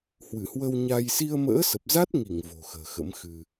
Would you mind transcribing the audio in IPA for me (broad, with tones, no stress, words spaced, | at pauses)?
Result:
hwɨ˧˩hwə˧w ɲa˧j si˧ə̯mə̰ː˧˥sə˨˩p̚ za˦˥t̚ŋi˧˩ŋ vo̤˨˩xə̤ː˨˩xə̰˧˥mxɨ˧